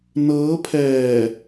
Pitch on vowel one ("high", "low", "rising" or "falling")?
rising